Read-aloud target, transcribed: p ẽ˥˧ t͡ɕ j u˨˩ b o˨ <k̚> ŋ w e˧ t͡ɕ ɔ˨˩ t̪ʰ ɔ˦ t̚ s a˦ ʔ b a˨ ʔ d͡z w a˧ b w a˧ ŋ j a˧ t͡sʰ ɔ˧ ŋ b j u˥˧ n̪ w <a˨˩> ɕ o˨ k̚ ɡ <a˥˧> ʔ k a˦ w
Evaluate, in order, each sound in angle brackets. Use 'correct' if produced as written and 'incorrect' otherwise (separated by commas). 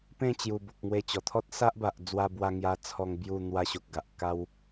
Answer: correct, incorrect, incorrect